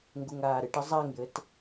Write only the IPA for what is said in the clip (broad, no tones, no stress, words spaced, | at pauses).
ŋɡuŋaːɾɨʈ əzˤaŋjɘt